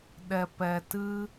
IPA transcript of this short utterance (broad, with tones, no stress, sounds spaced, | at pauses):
ɗ ɛ˨ p ɛ˨ t ɨ˦